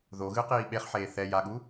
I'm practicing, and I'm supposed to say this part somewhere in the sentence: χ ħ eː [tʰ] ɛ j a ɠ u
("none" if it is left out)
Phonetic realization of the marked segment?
θ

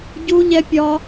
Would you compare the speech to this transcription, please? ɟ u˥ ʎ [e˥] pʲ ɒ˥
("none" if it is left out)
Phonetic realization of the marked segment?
ɛ˥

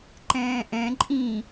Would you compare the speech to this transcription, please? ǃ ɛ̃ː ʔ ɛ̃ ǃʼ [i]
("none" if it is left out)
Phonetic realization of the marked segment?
ĩ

